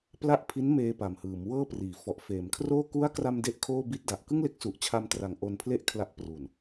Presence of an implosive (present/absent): absent